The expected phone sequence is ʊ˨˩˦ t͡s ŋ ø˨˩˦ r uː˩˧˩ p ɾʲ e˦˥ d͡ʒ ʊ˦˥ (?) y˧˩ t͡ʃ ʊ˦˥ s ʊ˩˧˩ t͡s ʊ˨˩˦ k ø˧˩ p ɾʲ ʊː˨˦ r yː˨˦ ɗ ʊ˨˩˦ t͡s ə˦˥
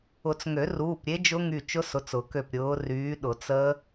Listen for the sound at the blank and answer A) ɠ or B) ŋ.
B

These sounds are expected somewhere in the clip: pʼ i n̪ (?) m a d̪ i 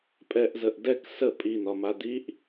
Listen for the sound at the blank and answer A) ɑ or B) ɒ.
B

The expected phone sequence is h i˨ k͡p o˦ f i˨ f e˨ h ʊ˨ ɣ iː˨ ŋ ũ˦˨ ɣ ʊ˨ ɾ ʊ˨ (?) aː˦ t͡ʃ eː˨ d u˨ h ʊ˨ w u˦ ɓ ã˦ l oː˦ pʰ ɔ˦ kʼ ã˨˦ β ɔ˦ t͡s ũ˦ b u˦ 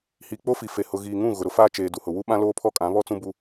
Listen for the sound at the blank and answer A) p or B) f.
B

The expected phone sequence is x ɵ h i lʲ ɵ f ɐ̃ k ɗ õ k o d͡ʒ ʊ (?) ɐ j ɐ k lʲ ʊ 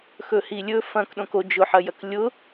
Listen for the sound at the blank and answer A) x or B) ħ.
B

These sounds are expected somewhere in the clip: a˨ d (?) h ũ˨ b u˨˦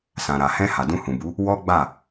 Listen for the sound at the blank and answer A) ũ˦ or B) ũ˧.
B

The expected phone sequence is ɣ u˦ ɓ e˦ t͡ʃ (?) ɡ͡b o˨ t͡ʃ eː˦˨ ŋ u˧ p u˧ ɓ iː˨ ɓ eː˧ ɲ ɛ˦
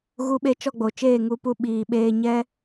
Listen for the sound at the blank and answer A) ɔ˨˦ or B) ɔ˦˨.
B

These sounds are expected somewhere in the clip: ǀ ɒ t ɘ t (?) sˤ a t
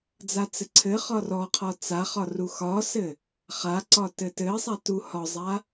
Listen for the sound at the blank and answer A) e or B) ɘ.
B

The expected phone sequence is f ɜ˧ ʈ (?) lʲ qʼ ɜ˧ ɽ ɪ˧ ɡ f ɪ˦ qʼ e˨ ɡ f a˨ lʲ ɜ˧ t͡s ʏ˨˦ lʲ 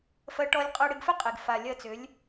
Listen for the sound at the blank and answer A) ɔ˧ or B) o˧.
A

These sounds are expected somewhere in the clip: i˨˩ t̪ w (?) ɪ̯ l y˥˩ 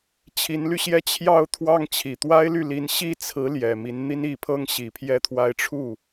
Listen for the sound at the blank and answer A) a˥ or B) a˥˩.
A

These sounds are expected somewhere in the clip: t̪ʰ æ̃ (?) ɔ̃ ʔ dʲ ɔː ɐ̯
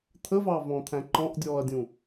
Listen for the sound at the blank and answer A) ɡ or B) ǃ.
B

